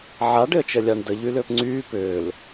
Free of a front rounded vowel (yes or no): no